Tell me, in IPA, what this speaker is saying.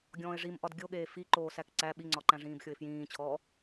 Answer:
ɡʲɔ̃ːɪ̯ʐimʔɒd ɡʲoɠeː fi ǃoːsækǀæ ɓiŋ͡ǀɒǃæ̃ ʐĩːbxʲoɪ̯fjĩːt͡ɕʰɔː

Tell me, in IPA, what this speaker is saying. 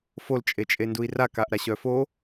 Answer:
fol t͡ʃʼet͡ʃʼendui̯ra kaʔɾaɕœfo

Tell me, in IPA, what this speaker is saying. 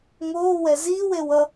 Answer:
ŋoː wɛziːw ewʌ

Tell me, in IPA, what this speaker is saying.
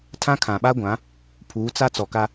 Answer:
tʰã˦ kʰã˨ɓa˦ɡʷã˨˦ | pʰuː˨˦t͡sa˦ t͡sɔ˨ka˦

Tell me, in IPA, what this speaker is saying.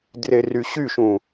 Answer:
dreryɕyʃũ

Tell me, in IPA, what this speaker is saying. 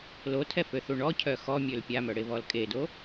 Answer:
lotʰɛføθu ɳɔcʰœ xɔmʲøl pʲamœɽeβɔl kʼedo

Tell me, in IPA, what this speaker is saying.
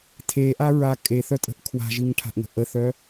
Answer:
tʰeʔaɹa kʼeθœtʼə̤ʔ kʰwa̤ʒiŋʈʰa̤ʔŋə̤ ʔəθœ

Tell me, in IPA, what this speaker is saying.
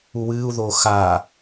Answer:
uwɨːu̯ðoː xa

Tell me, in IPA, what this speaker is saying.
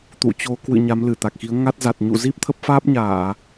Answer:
t̪ṵ˧˨t͡ɕo˨˦ kwɨ̰˧˨ ɲa˨˦mlɨ˧˩t̪a˨˩k̚ xi˨˦ə̯ŋa˦˥t̚ za˨˩t̚ɲṵ˧˨ zi˦˥p̚t̪ʰə˦˥p̚faː˦˥p̚ɲaː˧˩˨

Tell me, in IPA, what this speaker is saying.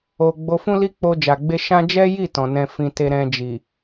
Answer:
o˧ ɡ͡bo˧fũ˦li˦ k͡po˧d͡ʒa˨ɡ͡be˧ʃã˦ d͡ʒɛ˦ji˦˨ tɔ̃˨nɛ̃˧fĩ˧ te˧ɾɛ̃˧d͡ʒi˨

